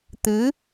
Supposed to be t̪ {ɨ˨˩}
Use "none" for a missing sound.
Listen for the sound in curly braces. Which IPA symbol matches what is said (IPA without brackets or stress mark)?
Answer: ɨ˧˥